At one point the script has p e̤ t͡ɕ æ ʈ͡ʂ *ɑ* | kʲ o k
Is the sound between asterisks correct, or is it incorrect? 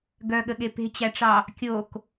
correct